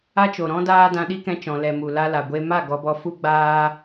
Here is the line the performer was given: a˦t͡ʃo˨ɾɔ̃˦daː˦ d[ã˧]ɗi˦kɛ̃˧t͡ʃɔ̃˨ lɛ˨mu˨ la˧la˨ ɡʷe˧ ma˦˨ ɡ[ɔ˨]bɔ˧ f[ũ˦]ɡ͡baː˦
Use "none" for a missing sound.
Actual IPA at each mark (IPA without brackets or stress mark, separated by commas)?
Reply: ã˧, ɔ˧, u˦